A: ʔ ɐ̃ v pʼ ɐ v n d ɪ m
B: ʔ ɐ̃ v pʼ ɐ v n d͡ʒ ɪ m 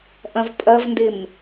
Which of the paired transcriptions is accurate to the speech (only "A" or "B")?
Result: A